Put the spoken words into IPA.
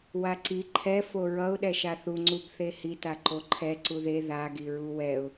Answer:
waǀi ǃʰɛ foɹʌʊ̯ ɗɛʃaθu ŋ͡ǀubθehi taǃoǃʰɛ ǀuðe ða ɡiɹuwɛʊ̯

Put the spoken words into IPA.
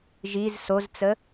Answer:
ʒiz sozt͡sə

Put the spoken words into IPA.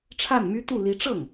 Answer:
ʈ͡ʂʰa˥˩nmy˥t̪u˥˩ li˧˥ʈ͡ʂɤ˥˩ŋ

